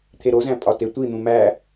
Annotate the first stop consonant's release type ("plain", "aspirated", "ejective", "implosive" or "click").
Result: aspirated